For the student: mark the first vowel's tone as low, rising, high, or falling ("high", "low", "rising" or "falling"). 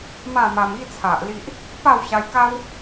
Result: falling